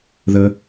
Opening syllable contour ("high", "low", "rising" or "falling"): high